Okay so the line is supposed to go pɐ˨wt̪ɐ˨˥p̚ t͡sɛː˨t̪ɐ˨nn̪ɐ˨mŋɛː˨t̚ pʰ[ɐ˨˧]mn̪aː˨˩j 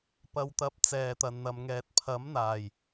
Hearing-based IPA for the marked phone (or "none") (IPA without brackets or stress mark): ɐ˨˥